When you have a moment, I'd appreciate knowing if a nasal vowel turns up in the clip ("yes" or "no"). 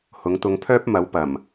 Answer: no